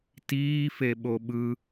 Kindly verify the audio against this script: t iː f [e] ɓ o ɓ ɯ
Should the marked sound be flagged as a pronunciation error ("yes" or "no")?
no